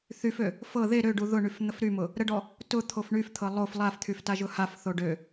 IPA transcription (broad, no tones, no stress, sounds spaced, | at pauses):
θ y f ø | f ɤ ð e ɾ ø ɖ u ð ʊ ɳ y f n̪ ə f ɾ y m ʊ | ɾ ə ɖ ɔ | t ʊ t̪ʰ o f ɳ y f t̪ʰ ɤ lˠ o f lˠ a f t̪ʰ y f t a ʒ ʊ h a f θ o ɖ ø